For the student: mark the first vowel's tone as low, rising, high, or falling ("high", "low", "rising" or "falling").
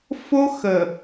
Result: high